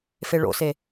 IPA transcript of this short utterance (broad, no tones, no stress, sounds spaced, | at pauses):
f e ɭ o̰ s e